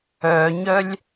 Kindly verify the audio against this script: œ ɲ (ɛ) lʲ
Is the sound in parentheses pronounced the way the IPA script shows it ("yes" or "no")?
no